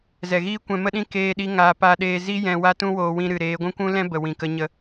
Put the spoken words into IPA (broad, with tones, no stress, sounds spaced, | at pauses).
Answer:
z ɛ˨ ɣ iː˦ kʷ ɛ̃˧ m ə˦ ɗ ĩ˦ k eː˦ ɗ i˦ ŋ aː˧ p a˧ ɗ eː˧ z i˦ j ɛ̃˧ w a˦ t ũ˦ w oː˧ w ĩ˧ ɾ ɨ˨ ɾ eː˨˦ ɡʷ ũ˦ kʷ ũ˦ l ɛ̃˦ b ə˨ w ĩ˨ k ə˧ ɲ ə˧